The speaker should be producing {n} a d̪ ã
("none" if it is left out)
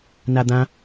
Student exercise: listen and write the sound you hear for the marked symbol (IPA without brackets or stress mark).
n